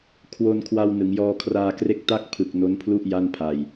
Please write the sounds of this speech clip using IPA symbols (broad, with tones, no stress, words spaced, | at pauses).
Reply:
kʰwo˧n kʰwa˧w nɯ˩˦ŋjɔː˧kʰraː˧kre˥˩k̚ ta˥˩k̚ pʰɯ˨˩k̚ no˦˥npʰlu˥˩ʔ ja˥˩npʰa˧j